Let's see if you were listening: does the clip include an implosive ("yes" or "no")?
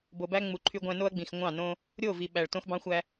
yes